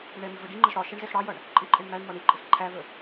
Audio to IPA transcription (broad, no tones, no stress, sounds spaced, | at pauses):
ɽ ɪ ɳ ɛ m i v ə ɖ i ŋ͡ǃ ə z ɽ ɒ ʃ ɛ ɳ z ɛ x ɽ ɑ j ʌ ɳ | ǃʼ ɪ ǃʼ ɪ ɳ m æ ɳ m ɒ ɳ i ǃʼ ɪ x ǃʰ æ v ə